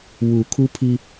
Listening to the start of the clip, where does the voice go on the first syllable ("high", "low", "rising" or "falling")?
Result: low